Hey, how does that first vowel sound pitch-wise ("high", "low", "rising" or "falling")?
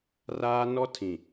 high